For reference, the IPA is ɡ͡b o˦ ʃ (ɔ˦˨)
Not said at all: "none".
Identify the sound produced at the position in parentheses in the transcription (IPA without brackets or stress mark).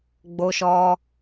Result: ɔ˦